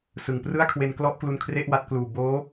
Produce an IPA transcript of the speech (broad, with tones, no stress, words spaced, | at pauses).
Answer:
sɯ˨˩ŋprɯ˥˩a̯kʰwe˧n klɔ˥˩ʔklu˧n kʰre˥˩ʔwa˦˥t̚kluː˨˩ boː˦˥